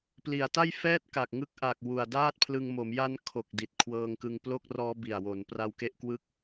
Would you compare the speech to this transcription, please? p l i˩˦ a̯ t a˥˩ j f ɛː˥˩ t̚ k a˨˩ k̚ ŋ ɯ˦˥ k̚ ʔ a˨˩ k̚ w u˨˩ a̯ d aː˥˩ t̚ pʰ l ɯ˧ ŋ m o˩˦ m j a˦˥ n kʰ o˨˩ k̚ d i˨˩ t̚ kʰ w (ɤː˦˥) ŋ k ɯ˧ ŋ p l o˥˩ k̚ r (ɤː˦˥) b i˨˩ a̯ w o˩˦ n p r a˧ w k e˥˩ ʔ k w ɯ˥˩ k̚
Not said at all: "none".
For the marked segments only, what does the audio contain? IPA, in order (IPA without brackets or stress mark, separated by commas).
ɤː˧, ɔː˦˥